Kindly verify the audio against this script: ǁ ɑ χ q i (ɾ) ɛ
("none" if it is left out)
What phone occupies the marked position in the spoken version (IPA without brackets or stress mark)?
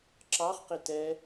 t